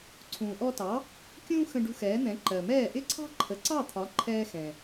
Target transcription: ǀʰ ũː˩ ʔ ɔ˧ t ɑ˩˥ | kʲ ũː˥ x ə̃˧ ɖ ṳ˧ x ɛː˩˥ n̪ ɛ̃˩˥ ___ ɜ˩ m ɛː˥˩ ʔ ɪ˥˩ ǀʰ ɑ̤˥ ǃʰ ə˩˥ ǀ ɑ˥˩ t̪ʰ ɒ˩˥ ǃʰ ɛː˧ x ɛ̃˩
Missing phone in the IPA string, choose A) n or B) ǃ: B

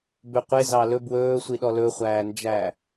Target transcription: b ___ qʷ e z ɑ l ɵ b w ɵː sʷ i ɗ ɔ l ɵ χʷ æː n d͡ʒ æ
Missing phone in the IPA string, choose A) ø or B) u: A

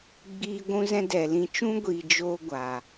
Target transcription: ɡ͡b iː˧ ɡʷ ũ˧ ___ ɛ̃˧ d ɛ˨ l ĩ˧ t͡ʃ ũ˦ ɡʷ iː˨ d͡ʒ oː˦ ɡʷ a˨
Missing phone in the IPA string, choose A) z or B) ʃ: A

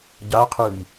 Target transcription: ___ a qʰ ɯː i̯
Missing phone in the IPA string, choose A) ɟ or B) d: A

